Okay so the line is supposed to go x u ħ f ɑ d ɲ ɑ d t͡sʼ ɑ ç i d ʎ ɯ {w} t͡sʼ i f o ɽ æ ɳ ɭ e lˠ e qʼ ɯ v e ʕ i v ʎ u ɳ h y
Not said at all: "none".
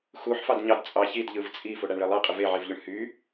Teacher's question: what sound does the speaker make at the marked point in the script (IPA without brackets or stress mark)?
v